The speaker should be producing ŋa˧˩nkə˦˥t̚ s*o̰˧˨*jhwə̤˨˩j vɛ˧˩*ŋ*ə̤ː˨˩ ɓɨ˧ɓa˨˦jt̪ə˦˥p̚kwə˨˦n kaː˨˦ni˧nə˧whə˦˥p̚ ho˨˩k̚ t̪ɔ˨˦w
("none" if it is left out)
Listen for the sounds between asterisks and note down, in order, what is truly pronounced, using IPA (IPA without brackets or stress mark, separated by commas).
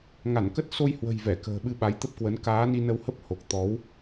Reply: o˧, k